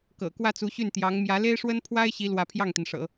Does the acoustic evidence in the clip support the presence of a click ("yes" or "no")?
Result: no